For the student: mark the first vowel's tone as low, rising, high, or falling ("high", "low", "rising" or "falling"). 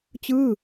falling